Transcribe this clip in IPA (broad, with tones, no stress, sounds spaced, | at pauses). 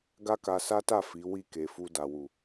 ɡ a˦ k a˧ s a˦ t a˦˨ f i˨˦ w i˦˨ k e˨ f u˧ d a˨ w u˨